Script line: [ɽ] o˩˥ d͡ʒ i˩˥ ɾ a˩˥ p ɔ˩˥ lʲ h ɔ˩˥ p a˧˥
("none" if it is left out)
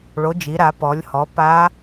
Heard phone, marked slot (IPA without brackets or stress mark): ɭ